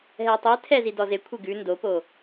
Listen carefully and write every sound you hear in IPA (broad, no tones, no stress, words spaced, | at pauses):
ɦɛtˤe tʰɛzi dɔze kʷʰeɡʉ ndopo